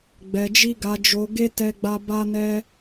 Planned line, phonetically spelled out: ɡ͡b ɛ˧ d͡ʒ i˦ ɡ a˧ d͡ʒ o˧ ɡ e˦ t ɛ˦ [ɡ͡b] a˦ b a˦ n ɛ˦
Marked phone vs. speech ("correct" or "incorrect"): correct